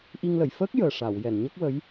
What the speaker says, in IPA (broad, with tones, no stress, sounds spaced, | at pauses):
ʔ i˧ ŋ l ə˨˩˨ j f əː˦˥ k̚ j əː˨˩ ʂ a˨˩˨ w j ɛ˨˩˨ n ɲ ə˦˥ k̚ w ə˧˥ j